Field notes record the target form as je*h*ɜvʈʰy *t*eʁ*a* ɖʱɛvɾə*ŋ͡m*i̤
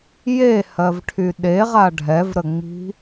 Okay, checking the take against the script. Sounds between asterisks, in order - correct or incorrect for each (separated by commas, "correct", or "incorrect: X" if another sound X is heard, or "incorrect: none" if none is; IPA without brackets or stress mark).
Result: correct, incorrect: ɗ, correct, correct